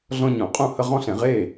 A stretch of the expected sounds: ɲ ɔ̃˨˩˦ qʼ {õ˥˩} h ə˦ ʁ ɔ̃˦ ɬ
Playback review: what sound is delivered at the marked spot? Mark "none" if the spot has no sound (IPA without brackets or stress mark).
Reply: ũ˥˩